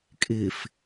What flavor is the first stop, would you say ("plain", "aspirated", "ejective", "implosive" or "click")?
ejective